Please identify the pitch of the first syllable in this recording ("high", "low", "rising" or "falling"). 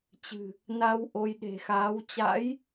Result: low